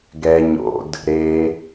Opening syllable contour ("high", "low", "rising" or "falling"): low